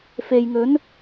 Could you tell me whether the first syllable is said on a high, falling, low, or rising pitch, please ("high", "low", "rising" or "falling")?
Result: low